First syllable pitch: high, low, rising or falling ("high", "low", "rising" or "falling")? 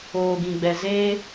low